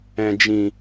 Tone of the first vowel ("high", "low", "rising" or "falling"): low